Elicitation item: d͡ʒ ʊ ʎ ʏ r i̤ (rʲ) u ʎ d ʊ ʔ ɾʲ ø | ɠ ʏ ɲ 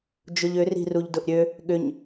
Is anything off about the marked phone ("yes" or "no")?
yes